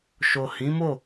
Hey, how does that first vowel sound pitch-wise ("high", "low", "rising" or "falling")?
low